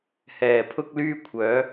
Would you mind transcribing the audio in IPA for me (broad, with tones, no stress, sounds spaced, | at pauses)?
h ɛː˨˩ pʰ ʊ˥ k̚ l yː˥ kʷʰ œː˨˥